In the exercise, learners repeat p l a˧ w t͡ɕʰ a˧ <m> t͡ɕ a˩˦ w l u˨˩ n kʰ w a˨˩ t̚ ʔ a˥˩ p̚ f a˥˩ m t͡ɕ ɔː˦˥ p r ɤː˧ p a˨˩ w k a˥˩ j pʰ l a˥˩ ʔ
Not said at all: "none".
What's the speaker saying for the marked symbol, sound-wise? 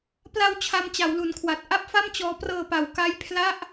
m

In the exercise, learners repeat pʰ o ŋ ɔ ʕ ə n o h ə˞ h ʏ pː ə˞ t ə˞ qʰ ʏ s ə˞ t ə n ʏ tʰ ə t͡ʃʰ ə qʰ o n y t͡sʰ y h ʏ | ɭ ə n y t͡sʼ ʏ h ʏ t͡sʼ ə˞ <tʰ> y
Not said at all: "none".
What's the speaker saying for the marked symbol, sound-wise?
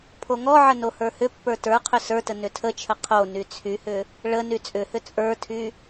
tʰ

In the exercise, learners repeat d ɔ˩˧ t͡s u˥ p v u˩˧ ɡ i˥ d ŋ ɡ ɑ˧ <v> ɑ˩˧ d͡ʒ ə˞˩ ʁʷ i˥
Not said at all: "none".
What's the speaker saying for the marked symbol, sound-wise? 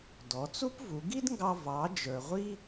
v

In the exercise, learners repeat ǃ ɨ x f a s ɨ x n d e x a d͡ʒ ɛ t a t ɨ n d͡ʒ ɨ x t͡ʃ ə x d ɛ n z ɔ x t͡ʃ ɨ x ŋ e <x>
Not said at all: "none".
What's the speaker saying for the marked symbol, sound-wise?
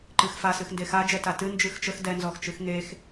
x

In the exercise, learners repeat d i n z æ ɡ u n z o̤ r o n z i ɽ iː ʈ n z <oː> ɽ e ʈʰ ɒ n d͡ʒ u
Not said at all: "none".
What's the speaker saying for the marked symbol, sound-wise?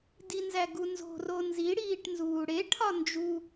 uː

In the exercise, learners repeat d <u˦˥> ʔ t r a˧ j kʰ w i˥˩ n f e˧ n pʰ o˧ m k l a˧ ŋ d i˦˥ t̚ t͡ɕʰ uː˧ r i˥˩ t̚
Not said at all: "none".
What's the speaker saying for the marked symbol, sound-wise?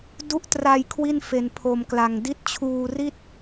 u˦˥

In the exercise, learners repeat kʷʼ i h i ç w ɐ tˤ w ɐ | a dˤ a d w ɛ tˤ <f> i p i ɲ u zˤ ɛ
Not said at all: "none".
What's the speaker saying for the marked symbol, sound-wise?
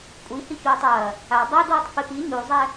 f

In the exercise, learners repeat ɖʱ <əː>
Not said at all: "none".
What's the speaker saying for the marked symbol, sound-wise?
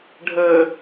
əː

